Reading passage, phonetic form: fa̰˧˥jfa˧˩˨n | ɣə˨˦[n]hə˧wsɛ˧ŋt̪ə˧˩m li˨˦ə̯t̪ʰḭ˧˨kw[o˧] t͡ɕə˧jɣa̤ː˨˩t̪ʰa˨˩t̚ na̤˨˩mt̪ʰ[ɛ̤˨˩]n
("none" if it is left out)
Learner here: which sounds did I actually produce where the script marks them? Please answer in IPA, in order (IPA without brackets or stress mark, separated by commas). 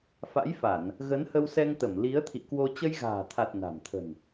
n, o˧, ə̤˨˩